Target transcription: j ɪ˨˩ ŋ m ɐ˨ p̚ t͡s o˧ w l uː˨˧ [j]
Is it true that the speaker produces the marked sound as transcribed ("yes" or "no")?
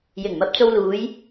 yes